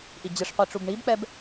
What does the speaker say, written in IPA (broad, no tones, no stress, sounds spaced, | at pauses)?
ʔ i d͡ʑ ɯ ʂ qʷ i ʈ͡ʂ u b ɳ i b k͡p ɛ b